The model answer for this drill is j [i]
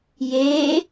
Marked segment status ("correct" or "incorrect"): incorrect